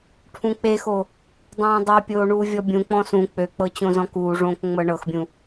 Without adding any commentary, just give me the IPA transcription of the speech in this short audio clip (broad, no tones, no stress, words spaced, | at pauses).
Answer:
ʈʰũk͡pexo | dˤõːdˤø pʲoːɳuːvʲɔbʲũ k͡pɔ̃sũ k͡pøk͡pɤ t͡ɕõzɔ̃kuːʐõːk ŋ͡mɤɳɤxbʲũ